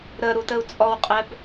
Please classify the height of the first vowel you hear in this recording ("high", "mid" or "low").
mid